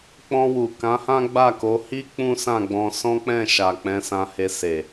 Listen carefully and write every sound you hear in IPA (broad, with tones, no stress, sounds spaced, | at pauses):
k͡p ɔ̃˧ w u˨ k ã˨˦ h ã˦ ɡ͡b a˦˨ k o˨˦ h i˦ k͡p ũ˦ s ã˦˨ ɡ͡b ɔ̃˧ s ɔ̃˦ k͡p ɛ̃˦˨ ʃ a˨ k͡p ɛ̃˨˦ s ã˧ h e˧ s e˨